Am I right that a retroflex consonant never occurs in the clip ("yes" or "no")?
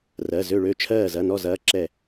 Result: no